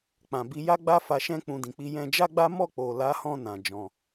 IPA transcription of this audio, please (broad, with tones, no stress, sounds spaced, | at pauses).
k͡p ã˨ b i˧ j a˦ ɡ͡b a˦ f a˧ ʃ ɛ̃˧ k͡p ũ˨ d ĩ˨ k͡p i˧ j ɛ̃˧ d͡ʒ a˦ ɡ͡b a˦ m ɔ˦˨ k͡p o˨ l a˨˦ h ɔ̃˧ n ã˨ d͡ʒ ɔ̃˧